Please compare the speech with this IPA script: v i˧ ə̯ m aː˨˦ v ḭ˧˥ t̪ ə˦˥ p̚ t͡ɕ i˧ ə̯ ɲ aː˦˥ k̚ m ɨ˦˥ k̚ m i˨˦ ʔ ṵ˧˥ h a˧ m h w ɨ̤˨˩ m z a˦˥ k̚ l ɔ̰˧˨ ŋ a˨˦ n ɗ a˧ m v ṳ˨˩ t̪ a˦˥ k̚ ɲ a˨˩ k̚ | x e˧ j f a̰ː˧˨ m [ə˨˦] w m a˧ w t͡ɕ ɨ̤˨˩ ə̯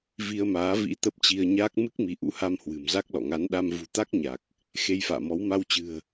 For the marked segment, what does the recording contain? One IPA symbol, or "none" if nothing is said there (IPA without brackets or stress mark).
ɔ˨˦